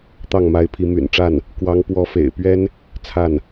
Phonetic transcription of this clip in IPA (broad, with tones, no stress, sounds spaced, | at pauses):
t̪ ɑ˥˩ ŋ m a˧˥ ɪ̯ pʰ i˧˥ m y̰˨˩ n ʈ͡ʂ a˥˩ n | k w ɑ˧˥ ŋ p w ɔ˧˥ f ḛ˨˩ ɪ̯ p ɥ ɛ˥ n | t͡sʰ a˥˩ n